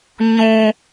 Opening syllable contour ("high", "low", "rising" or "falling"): high